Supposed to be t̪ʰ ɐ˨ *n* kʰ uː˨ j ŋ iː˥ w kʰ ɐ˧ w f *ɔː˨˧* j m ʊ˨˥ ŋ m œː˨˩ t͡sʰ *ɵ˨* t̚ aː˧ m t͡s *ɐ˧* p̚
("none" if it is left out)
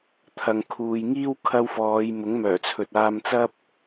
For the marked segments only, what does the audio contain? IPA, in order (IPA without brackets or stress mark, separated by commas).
ŋ, ɔː˨˧, ɵ˨, ɐ˥